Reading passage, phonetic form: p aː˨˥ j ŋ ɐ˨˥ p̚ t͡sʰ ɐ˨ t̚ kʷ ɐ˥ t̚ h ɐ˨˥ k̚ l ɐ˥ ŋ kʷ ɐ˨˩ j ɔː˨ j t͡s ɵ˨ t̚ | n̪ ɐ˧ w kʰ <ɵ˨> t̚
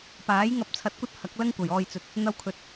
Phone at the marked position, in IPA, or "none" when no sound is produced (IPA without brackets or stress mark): ɵ˨